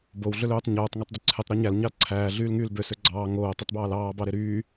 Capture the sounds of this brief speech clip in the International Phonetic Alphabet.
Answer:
bow ɮøløːtˤ ɲoːtˤ ŋɑtˤdyǀʰetˤ ɾoɲæl ɲɑlǀʰæː ɮyːlŋyːlbø søɡ͡ǀɑː ŋoː tˤetˤbɑːlɑː bɑɾeɾyː

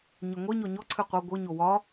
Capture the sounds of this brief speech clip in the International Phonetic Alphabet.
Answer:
ɲɨŋʷe ɲɔɲɔ ǀʰɨqʷɤ ɡʷɨ ɲowɒ

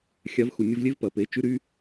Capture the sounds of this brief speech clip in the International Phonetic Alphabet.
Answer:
xʲa˩˧vxu˩nʲʊ˧vlʲe˧˥v pɐ˩pe˩˧ t͡ʃy˧˥ɾy˧˥

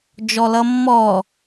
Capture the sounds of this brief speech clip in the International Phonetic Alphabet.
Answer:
d͡ʒɔlʌmːɔ

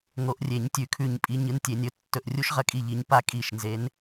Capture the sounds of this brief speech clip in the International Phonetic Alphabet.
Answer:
ŋo˨˦ʔrʲe˨˩˦ɲ tʲʉ˨˩˦kʰʉ˧˩ɲpʼi˨˦ ɲɨ˨˦ntʲe˨˩˦nʲɵ˨˦ tːɵ˧˩ʔrʲu˦ʃʁɐ˨˦kʼi˧˩ ʎi˨˦ɲpa˦kʼi˧˩ʃ nze˨˦n

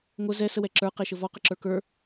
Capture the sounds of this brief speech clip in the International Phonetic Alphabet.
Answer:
ŋʷə zɛ səwɛǁə˞ qɛʃəvɔ qəǁə˞kə˞

